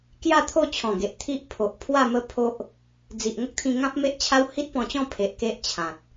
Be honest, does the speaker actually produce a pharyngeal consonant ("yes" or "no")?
no